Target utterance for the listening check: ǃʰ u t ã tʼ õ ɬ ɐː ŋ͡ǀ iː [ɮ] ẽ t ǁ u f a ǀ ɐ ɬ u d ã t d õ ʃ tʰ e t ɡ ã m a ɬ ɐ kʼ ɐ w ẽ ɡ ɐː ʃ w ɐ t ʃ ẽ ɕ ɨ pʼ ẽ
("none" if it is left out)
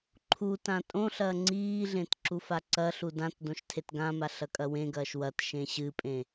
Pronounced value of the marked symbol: ɮ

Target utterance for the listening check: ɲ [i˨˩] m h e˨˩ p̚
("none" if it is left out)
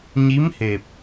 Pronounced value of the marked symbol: i˧˥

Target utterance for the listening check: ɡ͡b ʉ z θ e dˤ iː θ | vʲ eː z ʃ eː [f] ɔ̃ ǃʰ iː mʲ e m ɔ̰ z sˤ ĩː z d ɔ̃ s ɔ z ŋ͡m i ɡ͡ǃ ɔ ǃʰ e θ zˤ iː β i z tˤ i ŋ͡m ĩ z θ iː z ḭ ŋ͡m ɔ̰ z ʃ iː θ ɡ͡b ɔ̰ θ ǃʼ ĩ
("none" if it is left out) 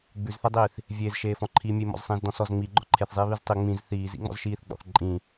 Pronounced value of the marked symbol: f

